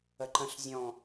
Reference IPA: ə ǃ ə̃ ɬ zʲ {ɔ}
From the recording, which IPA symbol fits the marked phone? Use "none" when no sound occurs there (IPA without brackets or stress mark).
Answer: ɔ̃